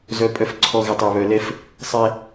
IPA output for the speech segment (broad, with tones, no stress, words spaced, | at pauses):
zœ˨pʼœ˨fǀʰɔ˨ ɣə˨tˤɛ˨βœ˨lɛ˦f | sˤɛ˦